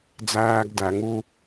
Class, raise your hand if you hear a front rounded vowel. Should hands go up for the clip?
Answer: no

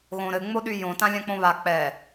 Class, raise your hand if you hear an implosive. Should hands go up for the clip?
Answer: yes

